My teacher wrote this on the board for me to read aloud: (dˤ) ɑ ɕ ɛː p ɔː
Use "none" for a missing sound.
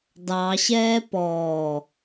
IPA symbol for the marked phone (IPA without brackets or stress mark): d